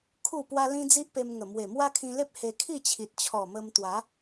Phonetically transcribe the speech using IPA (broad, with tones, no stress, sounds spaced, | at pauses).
kʰ u˥˧ p w a˦ l ĩ˦ d͡z i˦ ʔ p e˧ m ŋ ə˨˩ m w e˨˩ m w a˦ kʰ ĩ˧ l e˦ p̚ h e˧ kʰ i˥˧ t͡ɕʰ i˨ t̚ t͡ɕʰ ɔ˨˩ m ə˧ m t̪ w a˨˦